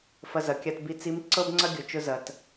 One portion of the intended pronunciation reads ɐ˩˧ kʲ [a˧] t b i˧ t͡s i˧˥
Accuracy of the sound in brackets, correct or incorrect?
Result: correct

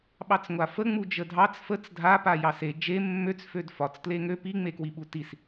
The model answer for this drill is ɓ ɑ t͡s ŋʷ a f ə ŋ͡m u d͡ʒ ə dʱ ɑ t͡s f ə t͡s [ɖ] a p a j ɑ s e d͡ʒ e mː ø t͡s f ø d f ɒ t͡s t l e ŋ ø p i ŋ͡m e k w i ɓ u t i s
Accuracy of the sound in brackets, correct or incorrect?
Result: incorrect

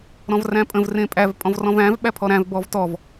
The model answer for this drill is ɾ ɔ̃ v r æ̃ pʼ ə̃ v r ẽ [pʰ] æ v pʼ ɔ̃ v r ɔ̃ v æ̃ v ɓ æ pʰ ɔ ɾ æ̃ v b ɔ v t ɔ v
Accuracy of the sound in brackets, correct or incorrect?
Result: incorrect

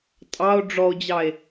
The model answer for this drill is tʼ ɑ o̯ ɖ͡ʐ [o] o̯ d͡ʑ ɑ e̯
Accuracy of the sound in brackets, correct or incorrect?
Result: incorrect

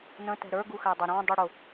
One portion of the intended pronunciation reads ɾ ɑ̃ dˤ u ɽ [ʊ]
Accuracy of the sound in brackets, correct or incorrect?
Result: correct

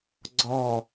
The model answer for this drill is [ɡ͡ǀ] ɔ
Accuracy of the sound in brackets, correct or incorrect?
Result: correct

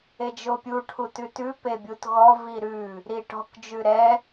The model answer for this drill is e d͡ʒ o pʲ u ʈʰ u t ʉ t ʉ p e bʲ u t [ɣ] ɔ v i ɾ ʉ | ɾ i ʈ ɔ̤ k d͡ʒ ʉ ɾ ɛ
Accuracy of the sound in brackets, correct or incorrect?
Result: correct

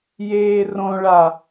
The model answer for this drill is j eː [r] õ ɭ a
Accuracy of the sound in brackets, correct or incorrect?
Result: correct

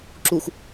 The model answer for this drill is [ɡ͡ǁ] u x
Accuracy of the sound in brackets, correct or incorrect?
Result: incorrect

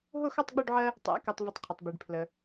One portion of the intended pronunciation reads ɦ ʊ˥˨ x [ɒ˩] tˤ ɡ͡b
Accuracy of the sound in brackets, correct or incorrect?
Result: incorrect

